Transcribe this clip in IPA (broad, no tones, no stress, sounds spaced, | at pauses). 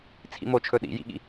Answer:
t͡sʰ ḭ m o t͡ʃʰ ɵ ɗ ḭ j ḭ ɠ ḭ